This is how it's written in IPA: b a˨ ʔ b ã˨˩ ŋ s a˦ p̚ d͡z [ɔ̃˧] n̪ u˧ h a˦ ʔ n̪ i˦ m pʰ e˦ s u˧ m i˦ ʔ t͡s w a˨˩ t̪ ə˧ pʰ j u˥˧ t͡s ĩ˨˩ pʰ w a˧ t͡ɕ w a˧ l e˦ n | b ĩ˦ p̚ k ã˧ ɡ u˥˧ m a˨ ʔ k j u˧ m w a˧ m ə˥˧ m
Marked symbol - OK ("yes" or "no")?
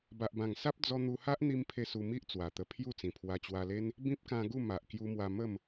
no